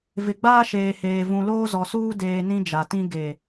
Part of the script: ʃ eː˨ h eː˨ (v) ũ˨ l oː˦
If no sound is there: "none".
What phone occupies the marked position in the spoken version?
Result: v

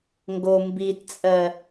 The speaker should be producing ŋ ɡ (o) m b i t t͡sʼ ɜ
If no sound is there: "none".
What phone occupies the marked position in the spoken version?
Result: o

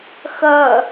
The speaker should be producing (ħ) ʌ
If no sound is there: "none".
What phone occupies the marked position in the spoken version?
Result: x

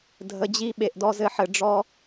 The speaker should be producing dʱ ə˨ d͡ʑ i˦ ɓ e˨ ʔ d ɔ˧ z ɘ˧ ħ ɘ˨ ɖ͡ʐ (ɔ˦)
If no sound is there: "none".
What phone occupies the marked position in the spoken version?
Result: ɔ˦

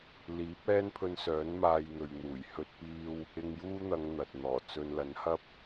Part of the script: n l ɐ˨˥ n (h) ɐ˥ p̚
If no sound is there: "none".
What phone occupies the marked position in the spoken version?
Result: h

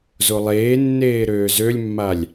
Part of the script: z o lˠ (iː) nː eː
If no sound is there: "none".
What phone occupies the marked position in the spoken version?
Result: eː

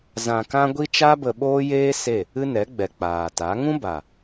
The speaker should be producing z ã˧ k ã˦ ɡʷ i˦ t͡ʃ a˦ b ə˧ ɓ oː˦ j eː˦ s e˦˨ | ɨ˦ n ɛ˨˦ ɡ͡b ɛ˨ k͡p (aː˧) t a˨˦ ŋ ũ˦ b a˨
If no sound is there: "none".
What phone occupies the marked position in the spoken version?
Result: aː˨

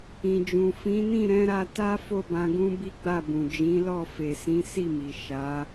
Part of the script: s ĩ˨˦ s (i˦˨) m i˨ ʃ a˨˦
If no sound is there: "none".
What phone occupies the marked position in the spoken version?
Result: i˦˨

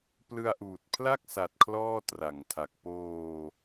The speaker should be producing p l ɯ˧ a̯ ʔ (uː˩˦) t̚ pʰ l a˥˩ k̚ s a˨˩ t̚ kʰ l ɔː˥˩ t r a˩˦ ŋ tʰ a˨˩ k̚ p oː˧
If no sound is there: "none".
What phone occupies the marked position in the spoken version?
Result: uː˨˩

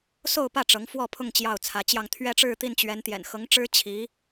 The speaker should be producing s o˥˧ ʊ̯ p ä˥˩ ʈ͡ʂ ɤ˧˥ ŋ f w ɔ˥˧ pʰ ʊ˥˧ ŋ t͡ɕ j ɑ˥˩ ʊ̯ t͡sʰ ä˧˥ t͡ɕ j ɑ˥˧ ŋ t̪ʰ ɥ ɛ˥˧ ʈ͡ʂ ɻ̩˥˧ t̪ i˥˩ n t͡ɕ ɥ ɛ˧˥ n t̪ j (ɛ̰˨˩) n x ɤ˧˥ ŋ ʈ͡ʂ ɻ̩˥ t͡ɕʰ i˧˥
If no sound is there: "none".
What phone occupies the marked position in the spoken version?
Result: ɛ̰˨˩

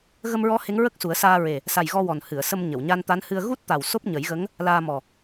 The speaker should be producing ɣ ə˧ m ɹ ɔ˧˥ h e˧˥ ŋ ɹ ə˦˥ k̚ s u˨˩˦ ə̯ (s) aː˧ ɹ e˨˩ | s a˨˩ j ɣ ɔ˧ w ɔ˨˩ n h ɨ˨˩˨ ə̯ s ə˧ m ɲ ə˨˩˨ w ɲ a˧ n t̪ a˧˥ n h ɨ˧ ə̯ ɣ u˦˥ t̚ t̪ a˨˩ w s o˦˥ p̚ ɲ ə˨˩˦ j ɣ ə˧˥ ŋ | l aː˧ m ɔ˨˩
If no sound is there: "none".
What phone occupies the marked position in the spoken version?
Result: s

